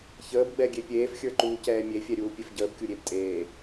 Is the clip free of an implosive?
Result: yes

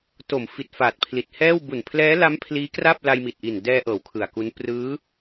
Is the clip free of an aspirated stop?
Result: no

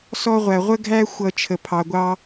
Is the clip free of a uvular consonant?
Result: no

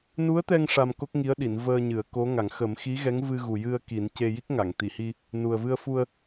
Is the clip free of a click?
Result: yes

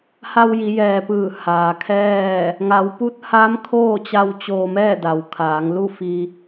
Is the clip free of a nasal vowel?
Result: yes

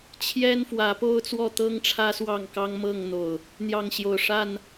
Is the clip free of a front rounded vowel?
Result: yes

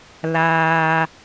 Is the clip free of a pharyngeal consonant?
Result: yes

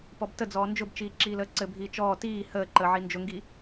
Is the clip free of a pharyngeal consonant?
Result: no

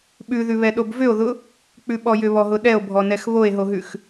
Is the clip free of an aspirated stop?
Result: yes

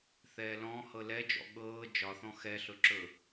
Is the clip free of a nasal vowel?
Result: no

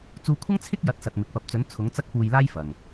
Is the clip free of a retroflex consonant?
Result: yes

